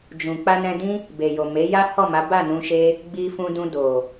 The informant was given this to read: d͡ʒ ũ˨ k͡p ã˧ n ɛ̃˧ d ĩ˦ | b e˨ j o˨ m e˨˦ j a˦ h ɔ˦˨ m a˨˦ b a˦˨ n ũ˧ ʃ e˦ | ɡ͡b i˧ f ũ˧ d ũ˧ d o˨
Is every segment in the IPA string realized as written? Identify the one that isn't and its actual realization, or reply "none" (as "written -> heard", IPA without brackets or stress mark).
ã˧ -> a˧